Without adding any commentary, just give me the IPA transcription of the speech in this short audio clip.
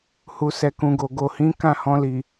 h u˨ s ɛ˨ k ũ˨ ɡ o˨ ɡ o˨ h ĩ˨˦ k ã˦˨ h ɔ̃˧ l i˨

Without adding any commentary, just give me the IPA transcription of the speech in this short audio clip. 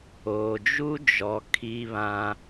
oː˨ d͡ʒ u˦ d͡ʒ ɔ˨ kʰ i˦ β ã˦

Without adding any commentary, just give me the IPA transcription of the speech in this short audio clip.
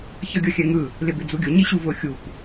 ç ʌ ɡʲ ʌ xʲ ɛ ŋ ɯ | l ɪ b ɪ d͡z u ɡʲ ʊ ɲ i ɕ u v ʊ xʲ u p

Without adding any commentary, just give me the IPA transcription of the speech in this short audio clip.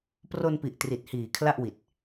p r o˧ n p i˨˩ ʔ t r i˨˩ t̚ h iː˨˩ kʰ l a˥˩ ʔ w i˨˩ t̚

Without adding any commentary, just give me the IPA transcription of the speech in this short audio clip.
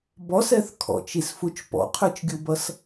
b ɔ s ɛ θ kʰ ɔ̰ t͡ʃ i s f u t͡ʃ p ɔ̰ qʰ ə˞ t͡ʃ ɡʲ u b ʌ s

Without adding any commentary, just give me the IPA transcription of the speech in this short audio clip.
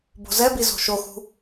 b o̤ z ɛ b i z o̤ ʃ o x ṳ

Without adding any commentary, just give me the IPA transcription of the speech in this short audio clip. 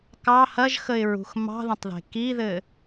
k ɑ h ɐ ʒ x ə ɪ̯ ɹ ṳ x m ɑ̤ ð ɐ̃ tˤ ð e̤ k i ð ɘ

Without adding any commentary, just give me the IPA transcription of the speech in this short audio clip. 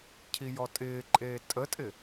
cʰ i j ɔ tʼ ɪː ǃʼ eː tʼ ə tʼ ɪ

